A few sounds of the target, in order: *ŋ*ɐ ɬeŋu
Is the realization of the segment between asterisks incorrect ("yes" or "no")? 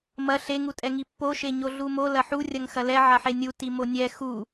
yes